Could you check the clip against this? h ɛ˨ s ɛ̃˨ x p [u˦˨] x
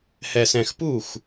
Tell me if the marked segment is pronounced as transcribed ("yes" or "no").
yes